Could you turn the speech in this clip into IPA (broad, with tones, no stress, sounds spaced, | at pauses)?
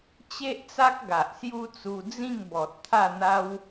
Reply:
t͡ɕ e˦ ʔ t͡s a˦ k̚ ɡ a˨ ʔ s j u˦ t͡s u˧ d͡z ĩ˥˧ ŋ b ɔ˨ t̚ t̪ʰ a˥˧ n̪ a˦ w